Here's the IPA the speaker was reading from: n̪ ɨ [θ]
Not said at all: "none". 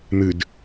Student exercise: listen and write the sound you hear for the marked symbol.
d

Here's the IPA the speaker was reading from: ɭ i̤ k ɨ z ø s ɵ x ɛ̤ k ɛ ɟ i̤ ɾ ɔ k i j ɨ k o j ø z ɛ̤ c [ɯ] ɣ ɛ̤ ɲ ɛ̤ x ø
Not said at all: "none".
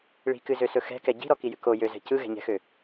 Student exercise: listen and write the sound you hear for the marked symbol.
ɯ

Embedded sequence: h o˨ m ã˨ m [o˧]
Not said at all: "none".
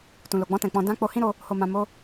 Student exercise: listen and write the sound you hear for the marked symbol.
o˧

